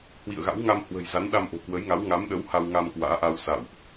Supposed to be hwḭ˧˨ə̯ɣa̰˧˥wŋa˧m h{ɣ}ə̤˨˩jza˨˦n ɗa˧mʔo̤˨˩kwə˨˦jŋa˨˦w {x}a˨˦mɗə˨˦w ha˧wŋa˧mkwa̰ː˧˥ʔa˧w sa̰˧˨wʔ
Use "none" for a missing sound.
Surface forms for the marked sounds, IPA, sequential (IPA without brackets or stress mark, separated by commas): w, ŋ